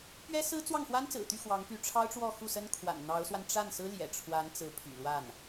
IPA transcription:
p ɥ ɛ˥ s ɹ̩˥ t͡s w ɑ˥˩ ŋ x w a˥ n t͡s ɹ̩˨˩ t̪ y˥˩ x w ɑ˧˥ ŋ p y˧˥ ʈ͡ʂʰ ɑ˥ ʊ̯ ʈ͡ʂ w ɔ˥˧ x u˥˩ s ə˥ n kʰ w a̰˨˩ n n̪ ɑ˧˥ ʊ̯ s w a˧ n ʈ͡ʂ a˥˩ n s ɹ̩˥ l j ɛ̰˨˩ ʈ͡ʂʰ w a˧˥ n t͡s ɹ̩˧˥ pʰ y̰˨˩ l w a˥˩ n

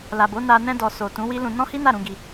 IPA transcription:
l a˨ b o˨˦ n a˧ n ɛ̃˧ d ɔ˨ s o˨ t ũ˨˦ w i˦ l ũ˧ n ɔ̃˦ h i˦ n a˦˨ ɾ ũ˧ ɡ i˧

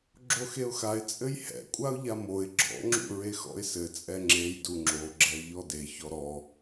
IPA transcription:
ɡ͡ǁ o x e ʊ̯ x a ɪ̯ t͡sʼ ɘ j h ɛ̰ kʷʼ a ʊ̯ ʎ a m o ɪ̯ ɡ͡ǁ ɔ̰ ŋ͡ǁ ṵ ɹ e x ɔ̰ ɪ̯ s ɘ t͡sʼ ɛ ŋ͡ǁ e j d u ŋ͡ǁ o ɡ͡ǁ ɛ ɪ̯ ʎ ɔ d e ç ɔ ɾ ɔ

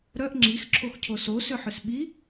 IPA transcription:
ɾ œ ʔ ŋ͡ǁ i x ǁʰ o x cʰ o s o s ʏ ħ ʏ s ɓ i

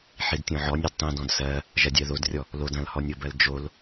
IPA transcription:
ħ i d tʲ ɔ̃ ʕ ɔ nʲ ɜ d tˤ ĩ d ɔ̃ d s ɜ | ʒ ɐ dʲ ɜ ð o d rʲ ɔ | l o d ɐ̃ l h ɔ nʲ o b ɜ l d͡ʒ o l

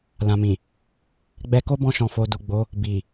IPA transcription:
l ã˨ m ĩ˨ | ɡ͡b ɛ˧ k o˦ b ɔ̃˧ ʃ ɔ̃˨ f o˨ d u˨ ɡ͡b o˨˦ | b i˨

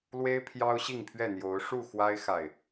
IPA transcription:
l w e˦ ɪ̯ pʰ j ɑ˦ ʊ̯ ɕ i˥˨ ŋ pʰ ɥ ɛ˥˨ n̪ j o˨˦ ʊ̯ ʂ u˥˨ x w a˦ ɪ̯ x a˨ ɪ̯

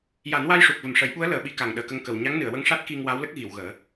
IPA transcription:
j a˨˩˦ n w a˧ j ʂ u˨˩ k̚ v ə˨˩ m ʂ ə˨˩˦ j ɓ u˧˥ ə̯ l əː˨˩˦ ɓ i˧ k a˨˩ ŋ ɗ əː˨˩ k ə˧ ŋ k ə˨˩ w ɲ a˧˥ ŋ n ɨ˨˩˨ ə̯ w ə˧ ŋ ʂ a˦˥ t̚ k i˧ ŋ w a˧˥ w l ə˦˥ k̚ ɣ i˨˩˨ w ɣ əː˨˩˦

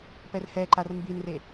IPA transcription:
p ɛ r h ɛ ǃ a r m b i n r e

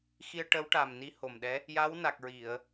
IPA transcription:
x i˧ ə̯ ʈ ə˧˥ w ʈ a˨˩ m n i˧˥ h o˨˩ m ɗ ɛ˧˥ | j a˧˥ w n a˨˩ k̚ ɹ i˨˩˨ ə̯

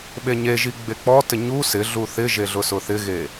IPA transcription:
ɓ e ɲ e ʒ i ɡ͡b e k͡p ɔ t ɪ ɲ u s ɪ ɮ u θ ɪ ʒ e ɮ ʊ s ʊ θ ɪ ɣ e

